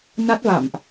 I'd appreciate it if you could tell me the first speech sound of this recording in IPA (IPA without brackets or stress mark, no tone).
n